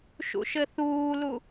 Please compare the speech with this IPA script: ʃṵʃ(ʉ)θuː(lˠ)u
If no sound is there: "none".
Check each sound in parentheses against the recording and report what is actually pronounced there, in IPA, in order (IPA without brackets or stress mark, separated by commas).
ɘ, l